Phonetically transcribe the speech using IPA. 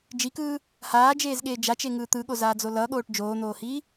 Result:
d͡ʒ i k ɯː | h aː d͡ʒ eː z ɠ eː d͡ʒ a t͡ʃ e ŋ ɯː t̪ ɯ ɠ o z aː d͡z o l ʌ ɠ oː ʈ d͡ʒ oː n̪ oː h iː

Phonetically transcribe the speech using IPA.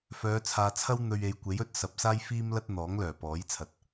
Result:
f œː˨˧ t͡sʰ aː˨ t͡sʰ ɐ˥ w n̪ ɵ˧ ɥ e˨˧ j kʷ e˨˥ j ɵ˥ t̚ s ɐ˨ p̚ s aː˥ j f iː˥ m l ɐ˥ t̚ n̪ ɔː˨˥ ŋ l œː˨˩ p ɔː˨˥ j t͡sʰ ɐ˨ t̚

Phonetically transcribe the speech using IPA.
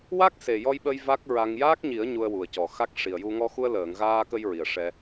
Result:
w a˦˥ k̚ s e˨˩ j ɔ˧ j ɓ ə˧ j v a˦˥ k̚ ɹ a˧ ŋ j aː˦˥ k̚ ɲ i˨˩˦ ə̯ ɲ u˧ ə̯ w u˨˩ ə̯ c ɔ˨˩ x a˦˥ k̚ ʂ i˨˩ ə̯ j u˧ ŋ ɔ˧ x u˧ ə̯ l əː˨˩˨ ŋ ɣ aː˧ k ə˧ j ɹ i˨˩ ə̯ ʂ ɛ˧

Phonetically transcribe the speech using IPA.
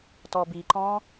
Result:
t ɔ b i ǃ ɔ̃

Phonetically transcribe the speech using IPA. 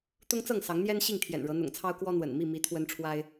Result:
t̪ ʊ˦ ŋ t͡s ɤ˥˨ ŋ s ɑ˨˦ ŋ n̪ j ɛ˦ n ɕ i˥˨ ŋ t̪ʰ j ɛ̰˨˩ n ɻ ɤ˨˦ n̪ ʊ̰˨˩ ŋ t͡sʰ ɑ˦ ʊ̯ k w ɔ˦ n̪ w ə̰˨˩ n m i˥˨ m i˨˦ t̪ʰ w ə˦ n ʈ͡ʂʰ w a˦ ɪ̯

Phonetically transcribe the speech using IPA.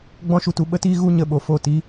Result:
ɡ͡b ɔ̃˦ ʃ u˧ t u˧ ɓ ə˦ t iː˦ ɣ u˦ ɲ ə˧ ɓ o˨ f o˦˨ t iː˦

